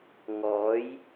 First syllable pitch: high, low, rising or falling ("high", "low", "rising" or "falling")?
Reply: rising